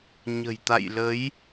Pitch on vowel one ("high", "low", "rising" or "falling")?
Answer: low